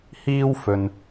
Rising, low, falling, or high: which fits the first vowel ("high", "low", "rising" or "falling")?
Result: high